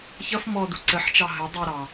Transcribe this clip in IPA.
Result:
ç ʌ f m ɔ d u ǀ ə ħ t͡ʃ ɑ ɦ ə dˤ u ɾ ɑ

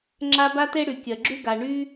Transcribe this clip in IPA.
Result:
ŋ͡ǁ a˦ b a˥ t e˥ ɽ y˨ kʲ ɜ˨ ɡ͡ǁ y˥ ɡ a˨ ɳ y˦

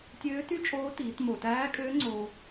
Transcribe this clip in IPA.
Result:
tʲ øː˧˥ t y˥ t͡ʃʼ oː˧˥ t iː˩˧ t m o˩ t æː˧˥ kʼ øː˧˥ ŋ͡ǀ oː˧

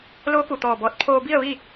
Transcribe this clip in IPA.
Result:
l oː˧˥ k u˩ t̪ ɔː˧˩ b ɔː˧˩ t̚ pʰ oː˧ b i˥˨ ə̯ ʋ i˥˨

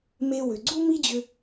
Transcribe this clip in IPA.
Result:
m e˧ w ʏ˩ ɡ͡ǀ u˥ m i˥ d͡ʑ ʏ˧

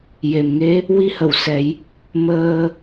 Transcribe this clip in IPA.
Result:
j e˨˩ m ŋ e˧˥ | w i˧ h ə˨˩˨ w s ɛ˨˩˦ j | m əː˧

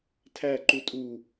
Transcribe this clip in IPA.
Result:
tʰ æ ǃ u tʼ u

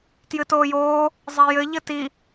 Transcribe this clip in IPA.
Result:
t j ɨ t oː j oː | zˤ ɛ j ɘ ʎ ɘ t i

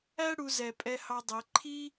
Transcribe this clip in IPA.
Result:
æ˥ ɽ u˩˧ z ɛ˩ pʼ ɛ˧ h ɑ˧ dˤ ɛ˩˧ ǃʰ i˥

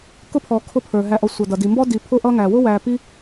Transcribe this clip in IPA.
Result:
k ʊ˥ pʰ ɔ˨ kʰ ʊ˦ pʰ ə˞˩ ɦ æ˨ ʔ ɔ˨ sʷ ʌ˩ d ʌ˩ d i˩ m b ɔ˦ d i˨ pʰ ʊ˦ ʔ ʌ˦ ŋ æ˩ w ʊ˥ w æ˨ p i˦

